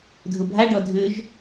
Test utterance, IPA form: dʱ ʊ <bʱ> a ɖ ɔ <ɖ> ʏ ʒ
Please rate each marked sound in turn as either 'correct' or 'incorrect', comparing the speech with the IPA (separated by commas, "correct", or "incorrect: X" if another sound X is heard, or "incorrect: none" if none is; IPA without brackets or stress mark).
correct, incorrect: dʱ